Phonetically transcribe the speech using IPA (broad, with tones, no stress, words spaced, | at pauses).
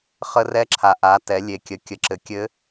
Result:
χə˧rɛ˧˥ǁʰa˩ ʔa˩˧ tɛ˩˧lʲe˩ kʲə˩˧ kʲə˩ǁɘ˩˧ kʲɘ˧˥